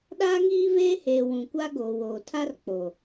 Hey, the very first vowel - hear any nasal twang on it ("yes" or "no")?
no